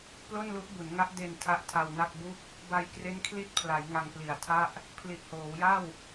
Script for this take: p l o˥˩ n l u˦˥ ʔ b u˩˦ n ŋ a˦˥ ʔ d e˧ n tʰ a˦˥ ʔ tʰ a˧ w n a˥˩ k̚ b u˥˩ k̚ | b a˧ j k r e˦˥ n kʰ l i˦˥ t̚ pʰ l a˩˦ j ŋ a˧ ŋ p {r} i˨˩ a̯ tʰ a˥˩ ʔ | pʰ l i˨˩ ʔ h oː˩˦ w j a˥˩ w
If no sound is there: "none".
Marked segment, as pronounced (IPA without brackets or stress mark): l